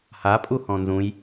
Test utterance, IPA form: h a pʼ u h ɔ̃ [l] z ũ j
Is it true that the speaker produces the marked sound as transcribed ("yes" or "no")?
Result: no